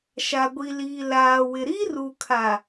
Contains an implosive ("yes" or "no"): no